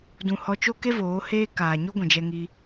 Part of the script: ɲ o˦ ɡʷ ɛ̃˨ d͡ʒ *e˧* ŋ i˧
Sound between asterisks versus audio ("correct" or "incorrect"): incorrect